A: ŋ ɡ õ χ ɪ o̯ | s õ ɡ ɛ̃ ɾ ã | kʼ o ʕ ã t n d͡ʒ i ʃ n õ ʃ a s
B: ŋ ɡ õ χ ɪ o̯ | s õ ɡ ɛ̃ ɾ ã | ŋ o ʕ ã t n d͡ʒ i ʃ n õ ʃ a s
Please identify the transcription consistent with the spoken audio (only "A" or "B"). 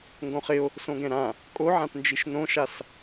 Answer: A